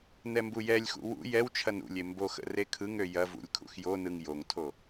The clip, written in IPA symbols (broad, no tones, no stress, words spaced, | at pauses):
nɛmbujɛlʲxṵ wṵ jɛwt͡ʃʰɐn ṵlʲe mboxə̰ rekʰɯŋø jɐvṵlʲ kʰṵxjonɯŋ joŋtʰo